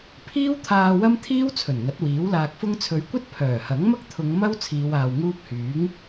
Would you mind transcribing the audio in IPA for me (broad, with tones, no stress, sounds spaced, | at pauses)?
pʰ iː˥ w t̪ʰ aː˧ w ɐ˥ m t̪ʰ iː˥ w t͡sʰ ɵ˨˩ n ŋ ɐ˨˥ t̚ w iː˨˥ w l aː˧ k̚ f ʊ˥ ŋ t͡sʰ ɵ˨˧ ɥ kʷ ɐ˥ t̚ pʰ œː˨˩ h ɐ˨˥ ŋ m ɐ˥ k̚ t̪ʰ ʊ˨˧ ŋ m ɐ˥ w t͡sʰ iː˨˧ w aː˨ w ŋ uː˥ p̚ h yː˨˥ ŋ